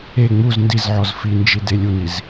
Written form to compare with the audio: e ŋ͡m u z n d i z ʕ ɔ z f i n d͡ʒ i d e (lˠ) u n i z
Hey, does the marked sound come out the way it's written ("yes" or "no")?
no